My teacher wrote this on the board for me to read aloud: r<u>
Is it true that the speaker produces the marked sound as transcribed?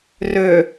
no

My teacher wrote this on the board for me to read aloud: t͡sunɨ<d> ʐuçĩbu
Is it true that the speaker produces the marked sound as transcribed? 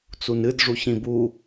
yes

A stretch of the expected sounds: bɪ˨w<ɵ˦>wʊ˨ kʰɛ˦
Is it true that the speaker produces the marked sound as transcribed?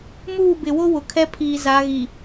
no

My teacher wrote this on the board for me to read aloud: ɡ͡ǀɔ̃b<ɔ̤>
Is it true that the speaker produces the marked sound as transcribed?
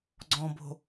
no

